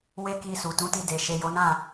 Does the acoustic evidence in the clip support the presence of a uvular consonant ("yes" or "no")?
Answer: no